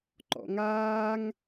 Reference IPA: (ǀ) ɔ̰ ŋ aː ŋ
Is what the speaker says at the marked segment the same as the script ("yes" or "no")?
no